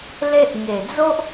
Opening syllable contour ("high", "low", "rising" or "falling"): high